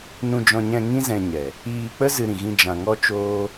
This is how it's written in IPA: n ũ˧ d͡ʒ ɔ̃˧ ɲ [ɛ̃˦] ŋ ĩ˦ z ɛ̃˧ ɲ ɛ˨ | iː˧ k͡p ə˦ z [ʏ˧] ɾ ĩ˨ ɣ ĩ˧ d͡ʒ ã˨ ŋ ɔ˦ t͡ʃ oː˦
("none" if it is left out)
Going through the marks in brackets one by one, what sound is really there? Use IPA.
ɛ̃˧, ɨ˧

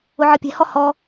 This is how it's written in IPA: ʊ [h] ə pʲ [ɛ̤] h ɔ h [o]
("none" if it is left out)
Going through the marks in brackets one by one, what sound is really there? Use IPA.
ʕ, ɛ̤, ɔ

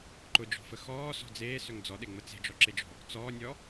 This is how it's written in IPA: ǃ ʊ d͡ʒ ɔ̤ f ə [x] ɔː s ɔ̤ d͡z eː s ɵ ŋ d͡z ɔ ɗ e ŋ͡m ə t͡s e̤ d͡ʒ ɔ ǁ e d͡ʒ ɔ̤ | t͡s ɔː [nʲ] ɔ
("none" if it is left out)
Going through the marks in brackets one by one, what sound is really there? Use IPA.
x, nʲ

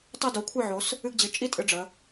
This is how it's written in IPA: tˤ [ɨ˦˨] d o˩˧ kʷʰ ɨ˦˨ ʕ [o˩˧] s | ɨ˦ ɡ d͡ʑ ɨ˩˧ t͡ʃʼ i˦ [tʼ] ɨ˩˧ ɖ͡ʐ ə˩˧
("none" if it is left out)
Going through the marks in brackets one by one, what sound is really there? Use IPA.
i˦˨, o˩˧, tʼ

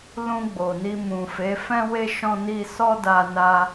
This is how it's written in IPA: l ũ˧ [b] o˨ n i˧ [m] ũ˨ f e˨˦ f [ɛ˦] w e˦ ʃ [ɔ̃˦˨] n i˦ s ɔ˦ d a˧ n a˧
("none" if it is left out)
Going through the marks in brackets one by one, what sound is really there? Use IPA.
ɡ͡b, m, ɛ̃˦, ɔ̃˦

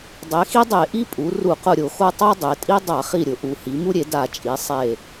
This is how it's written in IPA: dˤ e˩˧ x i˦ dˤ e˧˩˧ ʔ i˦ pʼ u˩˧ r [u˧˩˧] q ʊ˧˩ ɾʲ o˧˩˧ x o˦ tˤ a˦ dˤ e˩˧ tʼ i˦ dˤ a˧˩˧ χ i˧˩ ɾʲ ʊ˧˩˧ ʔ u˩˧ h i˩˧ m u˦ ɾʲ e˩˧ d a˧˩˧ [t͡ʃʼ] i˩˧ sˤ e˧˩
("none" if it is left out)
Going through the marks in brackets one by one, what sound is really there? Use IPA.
u˧˩˧, t͡ʃʼ

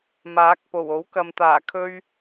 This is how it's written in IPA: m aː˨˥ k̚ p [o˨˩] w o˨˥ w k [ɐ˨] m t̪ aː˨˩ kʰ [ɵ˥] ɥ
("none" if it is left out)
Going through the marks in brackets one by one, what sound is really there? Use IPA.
o˨˩, ɐ˨, ɵ˥

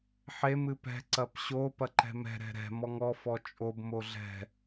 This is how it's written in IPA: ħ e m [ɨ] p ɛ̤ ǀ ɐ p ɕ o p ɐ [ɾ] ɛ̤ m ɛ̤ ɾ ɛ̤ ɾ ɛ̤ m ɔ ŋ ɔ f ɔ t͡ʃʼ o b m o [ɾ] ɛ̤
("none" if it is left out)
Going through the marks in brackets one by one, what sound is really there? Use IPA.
ɨ, ǃ, ɮ

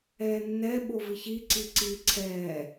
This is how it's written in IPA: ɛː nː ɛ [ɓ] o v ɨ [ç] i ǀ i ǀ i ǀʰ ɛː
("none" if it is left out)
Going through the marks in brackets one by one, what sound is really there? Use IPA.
ɓ, ç

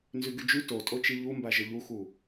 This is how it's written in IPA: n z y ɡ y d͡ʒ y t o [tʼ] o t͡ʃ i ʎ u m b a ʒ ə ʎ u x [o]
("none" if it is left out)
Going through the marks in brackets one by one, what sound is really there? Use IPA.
tʼ, u

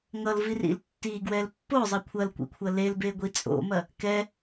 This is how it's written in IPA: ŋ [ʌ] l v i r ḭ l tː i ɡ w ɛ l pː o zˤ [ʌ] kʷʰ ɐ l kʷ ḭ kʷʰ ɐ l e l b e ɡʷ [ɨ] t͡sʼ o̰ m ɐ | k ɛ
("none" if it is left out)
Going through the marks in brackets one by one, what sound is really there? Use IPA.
ʌ, ʌ, i

